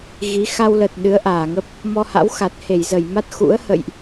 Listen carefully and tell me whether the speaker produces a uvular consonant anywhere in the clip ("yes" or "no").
no